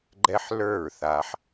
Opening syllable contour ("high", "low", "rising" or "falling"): high